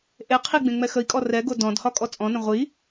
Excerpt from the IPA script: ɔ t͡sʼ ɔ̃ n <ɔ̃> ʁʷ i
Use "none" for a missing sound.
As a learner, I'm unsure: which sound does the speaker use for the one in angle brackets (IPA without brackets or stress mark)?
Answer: ə̃